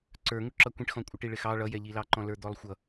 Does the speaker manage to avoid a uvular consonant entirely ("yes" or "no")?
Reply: yes